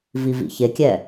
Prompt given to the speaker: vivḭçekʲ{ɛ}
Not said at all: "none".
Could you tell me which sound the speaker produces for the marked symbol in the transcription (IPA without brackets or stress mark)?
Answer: ɛ